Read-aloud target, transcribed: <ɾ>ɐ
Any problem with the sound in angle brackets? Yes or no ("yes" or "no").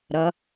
no